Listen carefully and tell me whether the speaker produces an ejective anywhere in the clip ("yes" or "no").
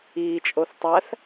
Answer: yes